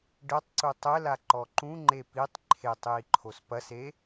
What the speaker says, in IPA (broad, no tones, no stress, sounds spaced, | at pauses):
ɖ ɘ tˤ ǀ u tˤ ɘ l a ǃ ɔ ǃ ũ ŋ͡ǃ e p i tˤ ǃʰ e tˤ j i ǃʰ o s p ɐ s e